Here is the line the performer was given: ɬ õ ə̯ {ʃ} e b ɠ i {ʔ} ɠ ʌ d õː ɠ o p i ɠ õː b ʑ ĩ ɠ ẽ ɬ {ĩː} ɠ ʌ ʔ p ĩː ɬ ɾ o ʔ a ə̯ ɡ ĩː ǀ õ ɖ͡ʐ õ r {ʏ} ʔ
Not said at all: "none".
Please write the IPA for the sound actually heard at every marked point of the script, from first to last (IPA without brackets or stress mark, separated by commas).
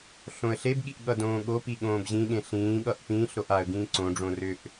ɬ, ʔ, ĩː, ʏ